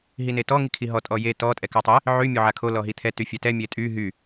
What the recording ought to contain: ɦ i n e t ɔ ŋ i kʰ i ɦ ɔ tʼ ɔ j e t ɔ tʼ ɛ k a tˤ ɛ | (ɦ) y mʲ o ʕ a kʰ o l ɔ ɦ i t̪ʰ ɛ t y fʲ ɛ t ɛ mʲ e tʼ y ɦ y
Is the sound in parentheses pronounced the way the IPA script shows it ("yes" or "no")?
no